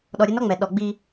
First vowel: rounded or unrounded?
rounded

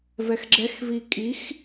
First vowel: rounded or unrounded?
unrounded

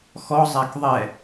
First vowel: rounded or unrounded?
rounded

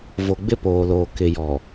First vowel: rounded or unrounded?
rounded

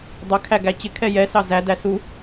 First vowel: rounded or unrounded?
unrounded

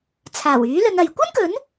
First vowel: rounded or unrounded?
unrounded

